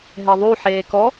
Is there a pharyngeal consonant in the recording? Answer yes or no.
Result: yes